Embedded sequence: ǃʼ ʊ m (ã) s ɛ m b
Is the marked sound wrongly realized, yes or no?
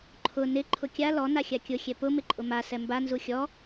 yes